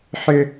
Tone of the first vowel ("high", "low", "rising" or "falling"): high